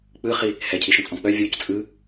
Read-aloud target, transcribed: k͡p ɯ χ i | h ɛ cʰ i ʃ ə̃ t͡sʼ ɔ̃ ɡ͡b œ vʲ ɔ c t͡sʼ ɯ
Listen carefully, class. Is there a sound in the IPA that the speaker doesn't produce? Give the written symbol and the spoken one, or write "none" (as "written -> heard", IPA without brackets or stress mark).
ɡ͡b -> k͡p